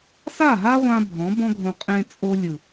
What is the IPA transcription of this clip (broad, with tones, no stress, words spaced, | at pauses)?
sa˦˨ɦa˦ʁʷã˧ bʱɔ̃˨˦bɔ̃˦ɡʱõ˧ qʼẽ˧t͡sʼo˧ lʲɯ˨